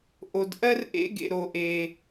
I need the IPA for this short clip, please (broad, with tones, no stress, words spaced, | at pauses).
ʔo˧dʔɜ˥rʔḛ˥ ɡḛ˧ɾo˧ʔe˧